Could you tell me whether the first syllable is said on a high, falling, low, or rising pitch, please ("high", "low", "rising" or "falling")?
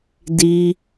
high